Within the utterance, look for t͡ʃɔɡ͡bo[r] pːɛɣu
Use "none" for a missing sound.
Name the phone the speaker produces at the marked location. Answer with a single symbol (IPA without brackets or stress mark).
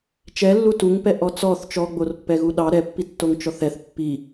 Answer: r